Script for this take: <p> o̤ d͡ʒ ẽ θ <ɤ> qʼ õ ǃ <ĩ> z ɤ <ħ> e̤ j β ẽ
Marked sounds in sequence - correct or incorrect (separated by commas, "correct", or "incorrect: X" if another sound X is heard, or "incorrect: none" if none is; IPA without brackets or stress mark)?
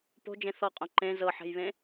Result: correct, incorrect: ɔ, incorrect: ẽ, correct